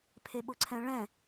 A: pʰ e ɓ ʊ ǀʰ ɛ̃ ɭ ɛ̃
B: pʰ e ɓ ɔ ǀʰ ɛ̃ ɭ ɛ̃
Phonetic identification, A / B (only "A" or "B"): A